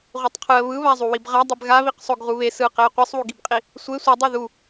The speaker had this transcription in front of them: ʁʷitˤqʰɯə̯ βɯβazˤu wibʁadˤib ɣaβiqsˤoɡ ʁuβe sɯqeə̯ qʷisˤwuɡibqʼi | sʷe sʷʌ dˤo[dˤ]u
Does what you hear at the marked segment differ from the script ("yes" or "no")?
yes